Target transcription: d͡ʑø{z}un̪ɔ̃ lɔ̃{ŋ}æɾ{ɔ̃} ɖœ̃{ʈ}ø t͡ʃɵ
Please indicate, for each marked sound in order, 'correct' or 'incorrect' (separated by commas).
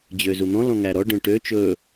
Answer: correct, correct, incorrect, correct